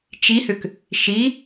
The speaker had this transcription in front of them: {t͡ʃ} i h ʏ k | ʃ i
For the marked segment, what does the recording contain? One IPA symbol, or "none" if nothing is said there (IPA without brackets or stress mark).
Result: t͡ʃ